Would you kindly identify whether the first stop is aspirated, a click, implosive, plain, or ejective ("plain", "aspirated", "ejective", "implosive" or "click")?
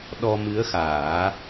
implosive